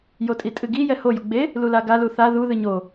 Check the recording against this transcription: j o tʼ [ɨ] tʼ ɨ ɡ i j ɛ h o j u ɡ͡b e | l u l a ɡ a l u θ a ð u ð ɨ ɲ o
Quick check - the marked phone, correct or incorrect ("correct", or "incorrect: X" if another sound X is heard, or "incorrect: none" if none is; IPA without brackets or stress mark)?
incorrect: i